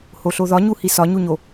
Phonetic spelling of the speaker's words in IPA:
h o ɬ o ð ɒ ɲ u h i s ɒ ɲ u ɲ o

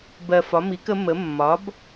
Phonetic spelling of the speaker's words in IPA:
b ɜ˧˩ f ɒ˩˥ m i˩˥ k ə˩˥ m ə˩˥ mː ɒ˩˥ b

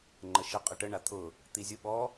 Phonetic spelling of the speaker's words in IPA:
ŋ͡ǃ ə ʃ ə qʼ ə ʈ ə ɳ a t̪ʰ ʊ | t̪ i zʲ ʊ ɓ ɔ

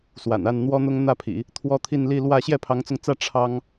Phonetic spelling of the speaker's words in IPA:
s w a̰˨˩ n a˥˩ n n̪ w ɔ˥ n̪ ʊ˥ ŋ n̪ ä˥˩ pʰ ḭ˨˩˦ | t̪ʰ w ɔ˥ t̪ʰ i˥˧ n l i˥˧ l w ä˥˧ ɕ j ɛ˥˩ pʰ ɑ˧˥ ŋ t͡s ʊ˧ ŋ t͡s ä˥˩ ʈ͡ʂʰ ɑ˥ ŋ

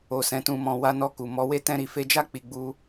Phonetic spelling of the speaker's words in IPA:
o˨ s ɛ̃˨ t ũ˨ m ɔ̃˨ w a˧ n ɔ˧ k u˨ m ɔ˨˦ w e˦ t ɛ̃˧ ɾ i˨ f e˧ d͡ʒ a˦ k͡p i˧ ɡ͡b u˦

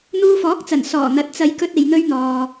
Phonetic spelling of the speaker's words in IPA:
n̪ uː˧ f ɔː˨˥ k̚ t͡s ɐ˨˩ n s ɔː˨˩ n̪ ɐ˨ t̚ t͡s ɐ˨˧ j k ɵ˧ t̚ e˨ j n̪ ɵ˧ ɥ n̪ ɔː˨

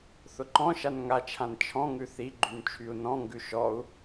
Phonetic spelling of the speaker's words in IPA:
θ ʊ ǃ ɔ̃ ʃ a n ŋ a t͡ʃʰ ã n t͡ʃʰ ɔ̃ ŋ ʉ θ i ɡ͡ǃ y n t͡ʃʰ y u̯ n ɔ̃ ŋ ɡ ʉ ʃ ɔ u̯

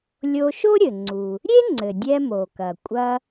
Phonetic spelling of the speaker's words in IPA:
lʲ o˧ ʃ o˥ ɾʲ ɘ˩ ŋ͡ǀ u˩ | ɾʲ e˥ ŋ͡ǀ ɘ˩ dʲ ɛ˧ m o˩ k ɐ˩ kʷʼ ɐ˧

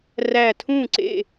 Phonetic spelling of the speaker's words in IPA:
r æ˧˩ tʰ ũ˥˩ ǀ ḛ˧˩

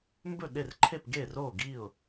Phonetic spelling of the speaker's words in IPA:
m b ɵ˥˩ ɗ e˥˩ r ǃʰ e˥˩ p ɡ e˥˩ r o˥˩ ɡ i˥˩ ʊ̯

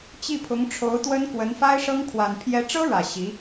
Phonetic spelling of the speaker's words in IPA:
t͡ɕ i˥˩ pʰ ʊ˧˥ ŋ ʈ͡ʂʰ o˧˥ ʊ̯ t̪ w ə˥ n k w ə˧˥ n f a˥ ɪ̯ ʂ ɤ˥ ŋ kʰ w a˨˩ n pʰ j ɛ˧˥ ʈ͡ʂ ɤ˥ ɻ ä˨˩ ɕ i˧˥

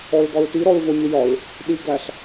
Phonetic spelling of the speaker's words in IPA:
ɔ ɹ ɡ ɒ ɹ t i ɾ ɔ ɹ v ʊ mʲ ʊ j ɒ ɹ | ɗ i ɡ æ ɬ

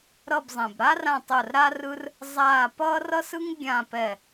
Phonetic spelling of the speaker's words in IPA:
ɾ ʌ˦˨ b zˤ ẽ˨ b ɾ a˥ r ã˦˨ tˤ o˦˨ r ɾ a˥ r ɯ˥ r | zˤ aː˦˨ p ʌː˥ r ʌ˥ s ɯ˥ ŋ ɡʲ ã˦˨ p ɛ˦˨

